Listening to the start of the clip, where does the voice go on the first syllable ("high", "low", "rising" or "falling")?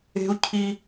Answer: high